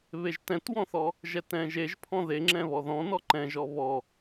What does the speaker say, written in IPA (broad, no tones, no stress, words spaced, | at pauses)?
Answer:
βeʒtɛ̃twɔ̃θɔ | ʒɛtɛ̃ʒeʒ pʰɔ̃ðeŋ͡ǁɛ̃ βɔðɔ̃ nɔǃɛ̃ʒɔ βɔ